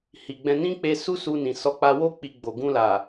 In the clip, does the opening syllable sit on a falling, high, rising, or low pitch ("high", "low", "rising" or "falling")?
low